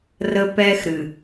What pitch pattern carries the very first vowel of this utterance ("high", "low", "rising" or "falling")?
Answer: high